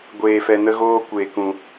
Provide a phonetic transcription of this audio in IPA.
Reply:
ɡʷ eː˧ f ɛ˧ n ə˦ ɣ oː˦ kʷ eː˨ k ũ˨

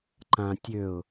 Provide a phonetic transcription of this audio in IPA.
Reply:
ǃ ã tʲ ø ʊ̯

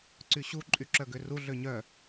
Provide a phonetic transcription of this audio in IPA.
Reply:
ǀ y ɕ u ǃʼ y ǁ œ ɡ ø r u ɮ ø ɲ œ

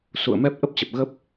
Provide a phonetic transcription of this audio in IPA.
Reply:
s ṵ˧˨ ə̯ m ɛ˦˥ p̚ ʔ ə˦˥ p̚ t͡ɕ ə˨˩ p̚ ɣ ə˦˥ p̚

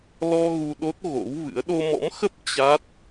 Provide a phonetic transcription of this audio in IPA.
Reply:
l ɔ˧ ɣ u˧ ɗ o˦˥ t̚ ɣ o̰˧˥ w v ɨ̰˧˥ ə̯ ɗ o˧ m ɔ̰˧˥ m x ə˦˥ p̚ t͡ɕ a˦˥ t̚

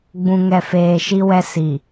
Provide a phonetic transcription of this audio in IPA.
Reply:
ɡ͡b ũ˨ ŋ ɛ˨ f eː˨ ʃ i˦ w ɛ˦ s i˨

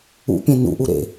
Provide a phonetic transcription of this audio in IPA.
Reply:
ṵ pʲ ẽ n ṵ ʔ u ɾ ḛ

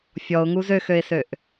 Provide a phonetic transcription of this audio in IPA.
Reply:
fʲ ɔ ʊ̯ ŋ u z ø x ø ɪ̯ s ø ʔ

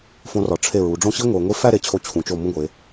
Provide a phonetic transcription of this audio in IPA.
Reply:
f õ˧ r ɒ˩˧ ʈ͡ʂʰ e˧˩ ɹ u˩˧ ɖ͡ʐ õ˥˧ ɕ i˥ ŋʷ e˩˧ ŋʷ i˥ f æ˥˧ ɾ e˩˧ t͡ɕʰ o˧ t͡ɕʰ ũ˩˧ t͡ʃ o˧˩ m ũ˥˧ ɡʷ e˩˧

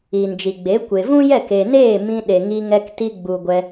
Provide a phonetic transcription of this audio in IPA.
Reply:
iː˨ n d͡ʒ i˨ ɡ͡b e˨˦ kʷ e˨ v ũ˦ j ɛ˦˨ k e˨ n eː˦˨ m ĩ˧ ɗ e˨ ŋ i˧ ŋ ɛ˧ k t i˧ ɡ͡b u˨ ɡʷ ɛ˧

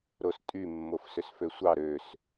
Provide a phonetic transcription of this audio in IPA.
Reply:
ɾ o s tʼ y mː o f s ø s f ø sʷ ɑ ɾ ø s

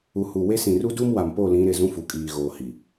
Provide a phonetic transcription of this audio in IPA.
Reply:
u˨ h u˨ w e˦ s ĩ˨ r u˦ d u˦ m w a˨ m p o˦˨ l ĩ˨˦ ɾ ɪ˨ z ũ˦ f u˨ kʼ iː˨ ɣ oː˨ h i˨

